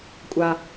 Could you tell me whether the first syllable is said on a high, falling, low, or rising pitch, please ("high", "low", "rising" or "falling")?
low